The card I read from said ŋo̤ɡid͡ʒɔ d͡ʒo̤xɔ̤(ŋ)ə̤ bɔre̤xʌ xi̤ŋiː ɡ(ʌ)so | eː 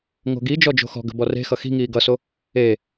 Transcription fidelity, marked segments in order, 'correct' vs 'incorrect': incorrect, correct

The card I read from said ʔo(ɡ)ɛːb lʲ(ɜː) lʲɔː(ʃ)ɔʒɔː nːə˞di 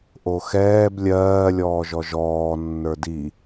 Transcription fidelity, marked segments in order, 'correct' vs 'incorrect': incorrect, correct, incorrect

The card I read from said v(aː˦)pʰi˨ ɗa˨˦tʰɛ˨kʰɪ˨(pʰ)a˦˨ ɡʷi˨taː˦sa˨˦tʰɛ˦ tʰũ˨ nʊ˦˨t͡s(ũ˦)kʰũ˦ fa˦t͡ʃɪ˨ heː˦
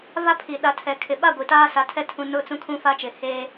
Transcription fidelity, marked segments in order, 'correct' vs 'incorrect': incorrect, incorrect, correct

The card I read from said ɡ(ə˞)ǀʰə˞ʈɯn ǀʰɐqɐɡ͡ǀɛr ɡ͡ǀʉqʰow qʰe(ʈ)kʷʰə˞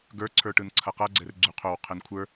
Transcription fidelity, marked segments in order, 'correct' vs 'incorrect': correct, incorrect

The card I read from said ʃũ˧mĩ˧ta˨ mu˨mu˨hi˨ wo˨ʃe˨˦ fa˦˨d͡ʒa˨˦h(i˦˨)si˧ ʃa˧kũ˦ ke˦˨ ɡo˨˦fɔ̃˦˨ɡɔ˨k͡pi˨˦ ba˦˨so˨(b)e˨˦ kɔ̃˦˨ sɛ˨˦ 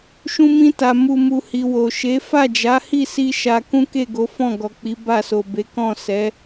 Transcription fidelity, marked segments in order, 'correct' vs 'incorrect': correct, correct

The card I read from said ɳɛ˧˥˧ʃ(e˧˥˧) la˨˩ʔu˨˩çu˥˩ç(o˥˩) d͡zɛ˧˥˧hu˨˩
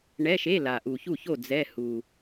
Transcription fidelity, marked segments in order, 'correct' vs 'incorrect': correct, correct

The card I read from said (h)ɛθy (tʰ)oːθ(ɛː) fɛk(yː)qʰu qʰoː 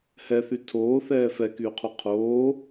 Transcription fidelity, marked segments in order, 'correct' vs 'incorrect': correct, correct, correct, correct

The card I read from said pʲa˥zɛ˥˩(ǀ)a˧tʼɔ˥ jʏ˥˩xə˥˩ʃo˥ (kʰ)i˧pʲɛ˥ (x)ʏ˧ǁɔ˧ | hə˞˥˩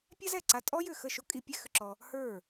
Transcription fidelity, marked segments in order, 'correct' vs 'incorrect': correct, incorrect, correct

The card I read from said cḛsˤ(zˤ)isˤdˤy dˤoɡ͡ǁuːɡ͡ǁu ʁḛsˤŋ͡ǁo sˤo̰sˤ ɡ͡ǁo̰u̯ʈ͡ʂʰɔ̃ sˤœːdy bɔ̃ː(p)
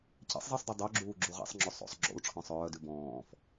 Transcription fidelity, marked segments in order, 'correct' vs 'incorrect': correct, incorrect

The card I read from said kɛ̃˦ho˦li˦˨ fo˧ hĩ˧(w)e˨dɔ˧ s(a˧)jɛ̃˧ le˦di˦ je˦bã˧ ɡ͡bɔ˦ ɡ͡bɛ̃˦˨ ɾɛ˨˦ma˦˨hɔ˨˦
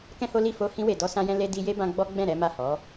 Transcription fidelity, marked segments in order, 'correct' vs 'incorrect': correct, incorrect

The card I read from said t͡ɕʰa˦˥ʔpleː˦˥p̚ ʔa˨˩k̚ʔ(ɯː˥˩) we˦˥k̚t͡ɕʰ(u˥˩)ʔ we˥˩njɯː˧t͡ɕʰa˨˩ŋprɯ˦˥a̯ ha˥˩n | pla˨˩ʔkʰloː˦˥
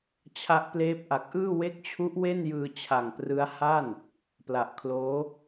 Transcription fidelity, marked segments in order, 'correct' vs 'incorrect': correct, incorrect

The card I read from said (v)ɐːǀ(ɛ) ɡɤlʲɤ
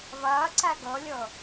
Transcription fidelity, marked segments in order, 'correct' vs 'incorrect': incorrect, incorrect

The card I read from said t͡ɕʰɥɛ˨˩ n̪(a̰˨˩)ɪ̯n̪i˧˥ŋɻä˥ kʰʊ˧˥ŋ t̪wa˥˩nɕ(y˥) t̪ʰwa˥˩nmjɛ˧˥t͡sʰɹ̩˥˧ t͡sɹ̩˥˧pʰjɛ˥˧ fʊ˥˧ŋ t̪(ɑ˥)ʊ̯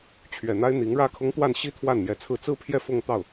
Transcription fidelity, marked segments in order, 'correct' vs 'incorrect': incorrect, incorrect, incorrect

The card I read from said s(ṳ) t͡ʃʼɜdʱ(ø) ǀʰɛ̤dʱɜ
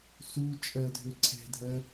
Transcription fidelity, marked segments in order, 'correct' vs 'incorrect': incorrect, correct

